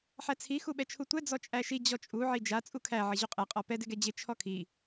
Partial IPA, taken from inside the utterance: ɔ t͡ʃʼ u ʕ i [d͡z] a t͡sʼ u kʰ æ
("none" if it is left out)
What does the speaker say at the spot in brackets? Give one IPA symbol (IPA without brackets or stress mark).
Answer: d͡ʒ